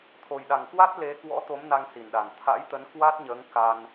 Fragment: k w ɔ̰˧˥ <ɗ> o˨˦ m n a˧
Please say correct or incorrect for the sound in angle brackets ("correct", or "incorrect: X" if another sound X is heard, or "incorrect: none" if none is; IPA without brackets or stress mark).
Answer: incorrect: t̪